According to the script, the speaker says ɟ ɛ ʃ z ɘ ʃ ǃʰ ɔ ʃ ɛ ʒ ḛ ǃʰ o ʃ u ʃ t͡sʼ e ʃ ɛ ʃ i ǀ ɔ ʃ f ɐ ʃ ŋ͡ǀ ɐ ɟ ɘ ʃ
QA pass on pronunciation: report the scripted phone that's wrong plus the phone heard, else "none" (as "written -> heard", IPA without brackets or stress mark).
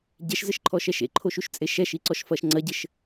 ʒ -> ʃ